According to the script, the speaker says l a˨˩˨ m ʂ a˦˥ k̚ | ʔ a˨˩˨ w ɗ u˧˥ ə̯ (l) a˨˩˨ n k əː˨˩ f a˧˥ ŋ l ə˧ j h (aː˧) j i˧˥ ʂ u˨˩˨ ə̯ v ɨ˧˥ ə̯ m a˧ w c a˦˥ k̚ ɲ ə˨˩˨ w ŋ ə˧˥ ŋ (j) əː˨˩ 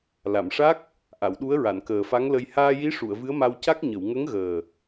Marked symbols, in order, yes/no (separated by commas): no, yes, no